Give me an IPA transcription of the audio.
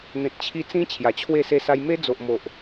n̪ẽ˨t̚t͡ɕʰi˧ t͡sĩ˧ t͡ɕʰja˨˩t͡ɕʰwe˥˧se˥˧sa˦j me˦d͡zo˨ʔmo˨ʔ

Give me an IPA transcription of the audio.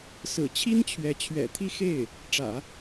sɹ̩˨˩t͡ɕʰi˥nt͡ɕʰɥɛ˧˥ t͡ɕʰɥɛ̰˨˩t̪ʰi˥˧xe˥˩ɪ̯ | ʈ͡ʂä̰˨˩˦

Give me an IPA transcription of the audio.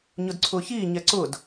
ɲʊdǀʰʊːçiː ɲɛǀʊd

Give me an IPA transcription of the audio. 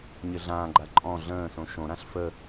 ɲɘɮãːɡ͡ǃa ǃʼɔ̃ ɮə̃ːsõ ʃõɾãɬ fə

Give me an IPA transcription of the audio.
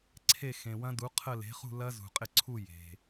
ǀʰe˥˧ xẽ˨wɐ̃˦˥du˨˥ qʰə˥˧ le̤˨˥χṳ˥˧lɐ˦˥ zṳ˨qʼɪ˥˩ǀʰu˥˧ je̤˨

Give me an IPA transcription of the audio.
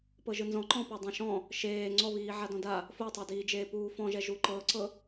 pɤʒɯnzɔ̃ǃɔ̃ pɔdˤẽʃɔ̃ | ʃeː ŋ͡ǀɔβiː ʕadɔ̃da | fotˤadiːd͡ʒeː puːfɔ̃ʒɛ ʒuǃɤǀɤ

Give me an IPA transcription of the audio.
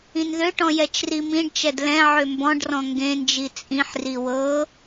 ĩnðøʈɔ̃ jɛt͡ʃrimĩɖt͡ʃɛd lɛ̃ʕø mbɔ̃ɖrɔ̃ ŋɡẽnd͡ʒi t͡sʼĩħri wɤ

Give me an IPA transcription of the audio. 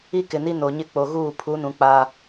i˦kɪ˨ni˦ no˨ɲɪ˦ k͡po˨ɣuː˦˨ pʰu˨˦nũ˨ k͡pa˦

